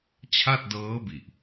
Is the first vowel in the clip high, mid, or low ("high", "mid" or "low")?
low